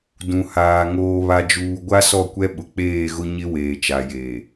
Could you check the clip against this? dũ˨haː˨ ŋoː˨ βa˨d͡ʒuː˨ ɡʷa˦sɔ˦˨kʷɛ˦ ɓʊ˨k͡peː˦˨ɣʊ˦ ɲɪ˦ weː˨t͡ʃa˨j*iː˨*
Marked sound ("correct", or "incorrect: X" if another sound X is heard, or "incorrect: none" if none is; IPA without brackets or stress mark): incorrect: eː˨